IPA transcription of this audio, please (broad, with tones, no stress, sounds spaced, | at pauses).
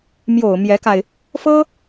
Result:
m j o˨˩ ʊ̯ m j ɛ˧˥ k a˧ ɪ̯ | f ɤ˥